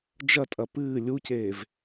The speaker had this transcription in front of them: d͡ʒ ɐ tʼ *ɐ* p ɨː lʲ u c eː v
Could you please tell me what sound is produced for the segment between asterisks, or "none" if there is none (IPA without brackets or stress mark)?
ɐ